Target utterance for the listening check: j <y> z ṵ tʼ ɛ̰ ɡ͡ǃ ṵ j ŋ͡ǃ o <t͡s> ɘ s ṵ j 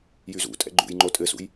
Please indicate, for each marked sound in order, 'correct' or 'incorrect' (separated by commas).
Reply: correct, incorrect